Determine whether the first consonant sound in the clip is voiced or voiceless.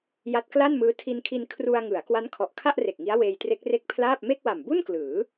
voiced